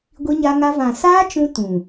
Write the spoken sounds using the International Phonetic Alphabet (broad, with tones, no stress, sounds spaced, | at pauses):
ɡʷ i˧ ɲ a˧ ŋ a˧ v ã˨ s aː˦ t͡ʃ ũ˧ t ũ˨